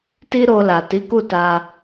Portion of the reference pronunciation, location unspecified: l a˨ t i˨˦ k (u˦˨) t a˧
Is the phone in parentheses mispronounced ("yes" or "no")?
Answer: no